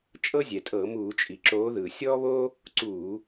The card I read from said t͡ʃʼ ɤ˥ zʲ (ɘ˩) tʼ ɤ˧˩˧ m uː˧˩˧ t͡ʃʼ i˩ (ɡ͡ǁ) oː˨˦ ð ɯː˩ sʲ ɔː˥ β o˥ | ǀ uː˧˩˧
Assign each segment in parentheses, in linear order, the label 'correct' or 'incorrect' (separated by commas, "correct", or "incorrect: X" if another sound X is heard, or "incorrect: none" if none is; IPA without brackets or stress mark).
incorrect: ɛ˩, incorrect: ǁ